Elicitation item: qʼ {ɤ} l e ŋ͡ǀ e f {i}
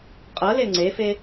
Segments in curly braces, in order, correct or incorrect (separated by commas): correct, incorrect